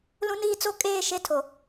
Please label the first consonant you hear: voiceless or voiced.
voiced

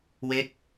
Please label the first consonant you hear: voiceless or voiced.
voiced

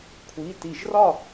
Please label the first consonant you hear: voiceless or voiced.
voiceless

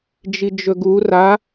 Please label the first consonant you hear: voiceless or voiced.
voiced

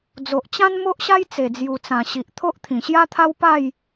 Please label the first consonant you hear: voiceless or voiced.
voiced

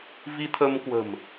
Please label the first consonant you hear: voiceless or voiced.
voiced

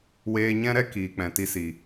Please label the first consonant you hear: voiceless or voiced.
voiced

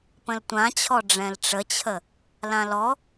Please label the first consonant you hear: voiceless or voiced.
voiceless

